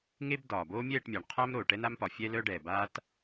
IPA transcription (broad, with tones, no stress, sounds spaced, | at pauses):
ŋ e˥ b d ɒː˨ b o˥ mʲ ɛː˥˧ ʈ mʲ a˨ ɳ qʰ a˥ m ɾ o˨ ʈ ɛ˥ n a˥ m p ɒ˨ fʲ ɛ˥ l œ˥ ɖ ɛː˨ b aː˥ t